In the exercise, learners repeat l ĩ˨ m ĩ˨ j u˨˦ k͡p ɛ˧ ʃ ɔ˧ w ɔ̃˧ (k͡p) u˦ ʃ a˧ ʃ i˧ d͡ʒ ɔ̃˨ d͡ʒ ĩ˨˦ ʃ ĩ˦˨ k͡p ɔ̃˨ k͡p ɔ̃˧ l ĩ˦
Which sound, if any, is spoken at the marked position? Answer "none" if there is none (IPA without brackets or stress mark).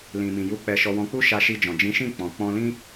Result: k͡p